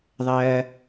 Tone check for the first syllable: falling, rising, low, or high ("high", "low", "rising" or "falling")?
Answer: low